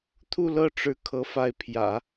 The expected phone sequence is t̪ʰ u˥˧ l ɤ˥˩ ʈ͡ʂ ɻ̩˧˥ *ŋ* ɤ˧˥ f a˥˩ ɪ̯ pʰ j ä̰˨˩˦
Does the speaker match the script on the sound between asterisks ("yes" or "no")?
no